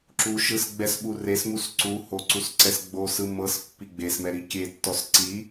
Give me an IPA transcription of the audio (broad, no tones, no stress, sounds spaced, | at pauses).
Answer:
ǁ u ʃ ɯ s ɡ͡b ɛ s ɓ u r e s m u s ǀ u h o ǀ u s ǀ ɛ s ɡ͡b o s ɯ m ɤ s pː i ɡ͡b e s m ɛ ɾ i kʲ e tː ɔ s ǀ i